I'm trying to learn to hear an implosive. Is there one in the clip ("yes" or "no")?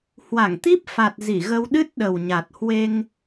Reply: yes